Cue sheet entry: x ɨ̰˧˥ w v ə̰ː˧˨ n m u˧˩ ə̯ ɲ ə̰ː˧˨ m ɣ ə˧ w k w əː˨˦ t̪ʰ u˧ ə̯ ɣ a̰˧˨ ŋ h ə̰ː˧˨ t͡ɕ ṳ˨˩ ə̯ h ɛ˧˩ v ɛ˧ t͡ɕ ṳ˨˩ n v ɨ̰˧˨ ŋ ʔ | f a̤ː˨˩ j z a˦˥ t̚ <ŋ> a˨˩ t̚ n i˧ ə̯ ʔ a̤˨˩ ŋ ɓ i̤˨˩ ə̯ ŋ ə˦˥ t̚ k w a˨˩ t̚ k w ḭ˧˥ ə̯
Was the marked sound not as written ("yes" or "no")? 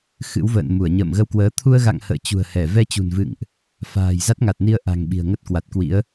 no